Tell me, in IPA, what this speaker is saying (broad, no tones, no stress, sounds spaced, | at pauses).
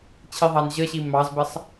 t͡ɕʰ i ðˤ ɑ n ʑ ə ɕ i m ɑ z b ə sˤ